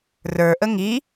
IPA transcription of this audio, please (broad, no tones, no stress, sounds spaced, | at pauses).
r ə˞ ʔ ə ŋ i